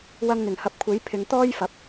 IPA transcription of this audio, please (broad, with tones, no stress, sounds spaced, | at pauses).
w ɐ˧ ŋ n̪ ɪ˨˩ ŋ h ɐ˨˥ p̚ kʷʰ e˨˥ j pʰ ɪ˨˧ ŋ t̪ ɔː˥ j f ɐ˨˥ p̚